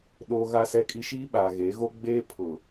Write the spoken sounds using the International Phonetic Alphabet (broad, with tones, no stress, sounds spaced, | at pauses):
ɗ oː˦ ɣ a˦ s ɛ˦ kʼ i˦ ʃ iː˦ ɓ aː˨ ɣ e˨˦ ɣ o˦ ɡ͡b eː˦ pʰ ʊ˨